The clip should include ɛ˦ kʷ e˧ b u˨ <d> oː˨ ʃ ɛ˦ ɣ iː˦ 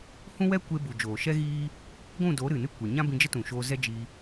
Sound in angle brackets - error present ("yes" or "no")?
yes